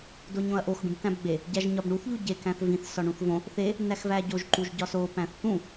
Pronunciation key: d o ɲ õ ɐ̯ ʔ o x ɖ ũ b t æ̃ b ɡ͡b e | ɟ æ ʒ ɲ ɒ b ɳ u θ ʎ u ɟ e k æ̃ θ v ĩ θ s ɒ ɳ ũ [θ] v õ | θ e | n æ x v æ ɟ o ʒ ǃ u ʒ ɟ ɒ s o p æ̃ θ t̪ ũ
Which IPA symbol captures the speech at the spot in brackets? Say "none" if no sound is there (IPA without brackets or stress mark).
θ